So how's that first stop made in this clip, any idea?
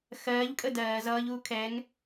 ejective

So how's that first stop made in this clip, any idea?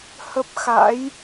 plain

